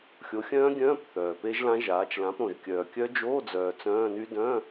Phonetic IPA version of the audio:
xʲo˨˥xʲœ̃ː˦˥ɡʲœ̃ː˧˥˧p θœː˨pe˦˥ʒlã˦˥ʒaː˨˥t͡ʃ lã˨˥pɾõ˨ʒ kʲœː˨ kʲœ˦˥d͡ʒoː˧˥˧d͡zœː˨ t͡sœ̃ː˧˥˧ny˦˥ dœ̃˧˥˧

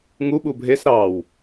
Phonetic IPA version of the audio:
ŋu ɓubʱes ɾɑw

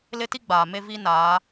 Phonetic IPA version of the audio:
lɪ˦ti˦ɡ͡baː˨ me˦vi˦ naː˨˦

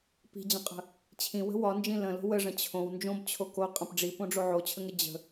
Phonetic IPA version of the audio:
pi̤d͡ʑə̃qʼə̤ | t͡ɕʰĩwə̤ wɒnd͡ʒĩ lə̃lo̤ wəʐə̃ t͡ɕʰõw nd͡ʒõbt͡ɕʰo ko qʼə̃p ɖ͡ʐipõɖ͡ʐo ʕot͡ɕʰəŋə d͡ʑə̤

